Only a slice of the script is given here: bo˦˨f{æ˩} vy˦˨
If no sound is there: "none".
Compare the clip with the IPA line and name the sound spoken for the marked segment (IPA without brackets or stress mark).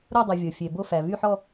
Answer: æ˩